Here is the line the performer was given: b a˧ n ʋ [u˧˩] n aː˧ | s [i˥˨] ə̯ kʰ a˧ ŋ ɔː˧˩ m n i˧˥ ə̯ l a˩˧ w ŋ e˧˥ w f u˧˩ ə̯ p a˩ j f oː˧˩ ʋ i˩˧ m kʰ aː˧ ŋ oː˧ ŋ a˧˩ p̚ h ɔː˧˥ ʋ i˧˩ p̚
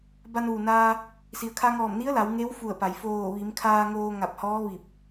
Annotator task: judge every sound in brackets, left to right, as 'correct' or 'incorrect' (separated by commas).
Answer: incorrect, incorrect